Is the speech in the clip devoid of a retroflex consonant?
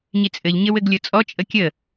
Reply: yes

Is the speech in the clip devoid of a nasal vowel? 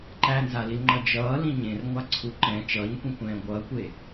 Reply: no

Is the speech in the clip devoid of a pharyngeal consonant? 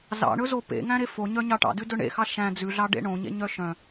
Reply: yes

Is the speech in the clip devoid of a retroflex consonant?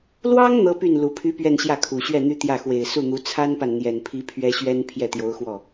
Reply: yes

